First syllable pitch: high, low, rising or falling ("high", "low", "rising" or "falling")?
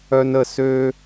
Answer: high